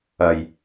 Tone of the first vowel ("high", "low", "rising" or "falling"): low